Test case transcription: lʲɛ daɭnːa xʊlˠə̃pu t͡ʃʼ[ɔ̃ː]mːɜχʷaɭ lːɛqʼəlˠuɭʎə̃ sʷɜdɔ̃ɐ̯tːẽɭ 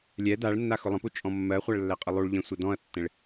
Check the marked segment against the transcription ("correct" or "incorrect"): incorrect